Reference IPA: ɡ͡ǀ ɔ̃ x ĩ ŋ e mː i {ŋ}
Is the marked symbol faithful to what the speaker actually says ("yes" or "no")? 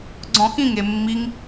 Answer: yes